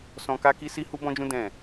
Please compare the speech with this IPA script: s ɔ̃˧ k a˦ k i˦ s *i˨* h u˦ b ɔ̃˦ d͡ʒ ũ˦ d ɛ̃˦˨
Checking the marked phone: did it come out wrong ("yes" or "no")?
yes